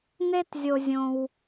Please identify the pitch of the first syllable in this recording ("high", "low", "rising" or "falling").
high